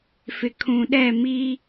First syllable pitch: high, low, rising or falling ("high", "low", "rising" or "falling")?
low